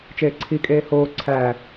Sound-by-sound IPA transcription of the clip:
t͡ʃ eː ǀʰ i kʼ eː h oː ǀʰ æː

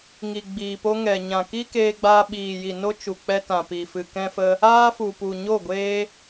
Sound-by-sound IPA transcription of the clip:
ŋ i˨ ɡ͡b iː˨ p o˦ ŋ ɛ˨ ɲ ã˨ k i˦ k eː˧ ɡ͡b aː˧ ɓ iː˨ j i˨ n o˦ t͡ʃ u˨ k͡p ɛ˧ t ã˨ p i˨ f ɨ˨ k ɛ̃˦ f ə˦ | aː˦ f u˨ p u˨ ɲ o˦˨ ɡʷ eː˦

